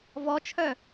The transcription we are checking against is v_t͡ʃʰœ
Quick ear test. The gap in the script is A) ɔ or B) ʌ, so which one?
A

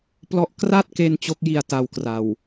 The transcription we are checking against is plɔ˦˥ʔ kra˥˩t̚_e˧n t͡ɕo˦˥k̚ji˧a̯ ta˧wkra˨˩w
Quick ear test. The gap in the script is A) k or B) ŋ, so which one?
A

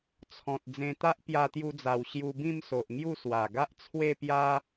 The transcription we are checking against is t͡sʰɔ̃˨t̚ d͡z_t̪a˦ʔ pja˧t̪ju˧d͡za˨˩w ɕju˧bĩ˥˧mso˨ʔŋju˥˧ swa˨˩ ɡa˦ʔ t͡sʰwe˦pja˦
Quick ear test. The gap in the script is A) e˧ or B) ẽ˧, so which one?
B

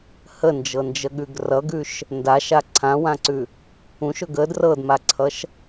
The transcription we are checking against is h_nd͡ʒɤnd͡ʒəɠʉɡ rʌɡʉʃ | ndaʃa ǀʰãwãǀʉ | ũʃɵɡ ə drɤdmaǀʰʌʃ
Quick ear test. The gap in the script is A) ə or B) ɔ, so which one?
A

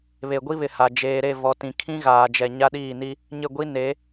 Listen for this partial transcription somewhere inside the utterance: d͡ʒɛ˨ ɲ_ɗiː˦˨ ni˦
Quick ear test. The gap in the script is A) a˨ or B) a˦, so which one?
B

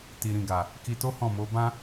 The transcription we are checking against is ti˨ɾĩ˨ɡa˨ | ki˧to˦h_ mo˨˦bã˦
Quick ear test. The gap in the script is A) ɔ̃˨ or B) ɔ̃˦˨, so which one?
B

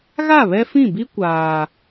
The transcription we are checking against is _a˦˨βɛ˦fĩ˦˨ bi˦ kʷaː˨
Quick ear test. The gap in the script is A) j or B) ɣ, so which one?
B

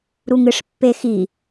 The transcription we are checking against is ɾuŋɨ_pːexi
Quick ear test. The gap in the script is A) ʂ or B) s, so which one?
A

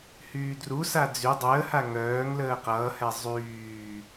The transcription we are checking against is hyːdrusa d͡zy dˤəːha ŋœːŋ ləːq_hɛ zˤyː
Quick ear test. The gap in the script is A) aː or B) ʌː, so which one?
B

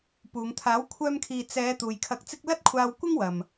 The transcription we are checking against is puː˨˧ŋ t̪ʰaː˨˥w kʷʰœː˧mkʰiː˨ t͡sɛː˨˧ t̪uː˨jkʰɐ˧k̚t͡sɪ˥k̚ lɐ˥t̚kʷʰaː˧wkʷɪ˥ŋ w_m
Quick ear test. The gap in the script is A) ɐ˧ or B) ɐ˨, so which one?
B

